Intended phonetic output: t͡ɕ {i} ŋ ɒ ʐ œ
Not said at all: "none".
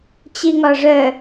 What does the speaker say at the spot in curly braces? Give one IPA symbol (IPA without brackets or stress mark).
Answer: i